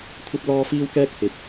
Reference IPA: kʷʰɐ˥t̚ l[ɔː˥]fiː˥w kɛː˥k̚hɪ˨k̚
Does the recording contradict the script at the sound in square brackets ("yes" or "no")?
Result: no